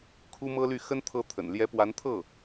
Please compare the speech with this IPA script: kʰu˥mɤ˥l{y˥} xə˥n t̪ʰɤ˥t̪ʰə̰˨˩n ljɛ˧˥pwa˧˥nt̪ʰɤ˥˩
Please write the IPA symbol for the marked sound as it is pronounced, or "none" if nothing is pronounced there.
y˥˩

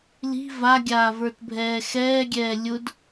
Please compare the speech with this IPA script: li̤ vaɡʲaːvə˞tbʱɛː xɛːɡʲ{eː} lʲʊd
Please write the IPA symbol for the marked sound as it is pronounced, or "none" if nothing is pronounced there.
ɛː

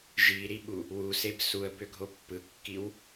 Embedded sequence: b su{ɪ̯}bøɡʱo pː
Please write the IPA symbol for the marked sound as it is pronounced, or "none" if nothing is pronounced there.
ə̯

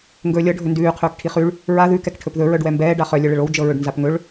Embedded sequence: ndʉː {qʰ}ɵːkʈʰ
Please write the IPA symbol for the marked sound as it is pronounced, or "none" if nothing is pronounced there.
qʰ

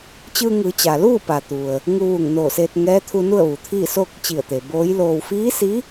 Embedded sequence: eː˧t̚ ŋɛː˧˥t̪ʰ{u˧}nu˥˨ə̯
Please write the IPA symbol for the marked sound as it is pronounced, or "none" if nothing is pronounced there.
u˧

